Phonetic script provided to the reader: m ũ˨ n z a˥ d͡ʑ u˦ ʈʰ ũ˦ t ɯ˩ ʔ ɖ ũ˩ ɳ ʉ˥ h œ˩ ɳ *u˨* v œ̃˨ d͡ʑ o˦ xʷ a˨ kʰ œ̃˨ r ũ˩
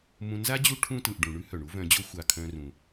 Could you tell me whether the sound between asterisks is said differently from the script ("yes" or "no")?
yes